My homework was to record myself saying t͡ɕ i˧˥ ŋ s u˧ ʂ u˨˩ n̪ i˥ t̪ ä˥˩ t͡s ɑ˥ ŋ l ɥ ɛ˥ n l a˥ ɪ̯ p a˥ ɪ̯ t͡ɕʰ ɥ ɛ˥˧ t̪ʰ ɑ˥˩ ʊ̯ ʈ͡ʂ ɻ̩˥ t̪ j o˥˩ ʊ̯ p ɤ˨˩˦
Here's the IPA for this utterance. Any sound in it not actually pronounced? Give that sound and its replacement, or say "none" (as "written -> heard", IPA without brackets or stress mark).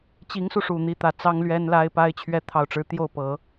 none